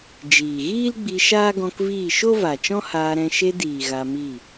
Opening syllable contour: low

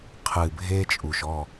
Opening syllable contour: low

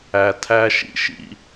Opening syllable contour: low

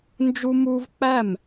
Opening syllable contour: high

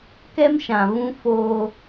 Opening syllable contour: high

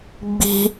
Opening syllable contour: high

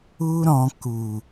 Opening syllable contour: high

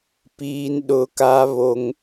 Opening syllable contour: high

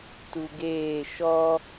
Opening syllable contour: low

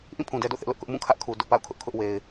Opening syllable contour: falling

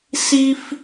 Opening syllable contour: high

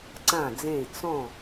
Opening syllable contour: falling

